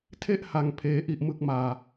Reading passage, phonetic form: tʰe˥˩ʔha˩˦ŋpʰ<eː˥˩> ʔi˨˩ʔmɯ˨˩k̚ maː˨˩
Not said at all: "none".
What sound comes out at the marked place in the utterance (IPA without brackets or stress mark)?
eː˩˦